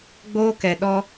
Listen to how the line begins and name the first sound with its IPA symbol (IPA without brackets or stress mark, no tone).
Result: ɡ͡b